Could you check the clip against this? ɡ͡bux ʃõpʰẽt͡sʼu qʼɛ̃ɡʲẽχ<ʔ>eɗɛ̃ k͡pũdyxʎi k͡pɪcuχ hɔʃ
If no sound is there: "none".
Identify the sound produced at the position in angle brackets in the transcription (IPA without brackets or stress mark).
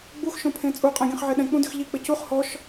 ʕ